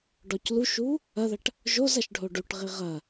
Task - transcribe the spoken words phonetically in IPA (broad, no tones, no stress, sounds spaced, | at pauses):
ɖ ɔ c l u ʃ u | ɐ ð ɐ ʈ | ʒ o z ɐ ʃ ɖʱ o ɖ u ʈ ʁ i ʁ ɐ